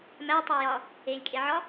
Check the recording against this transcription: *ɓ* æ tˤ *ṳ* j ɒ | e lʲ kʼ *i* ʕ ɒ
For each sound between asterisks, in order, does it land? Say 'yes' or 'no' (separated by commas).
no, no, no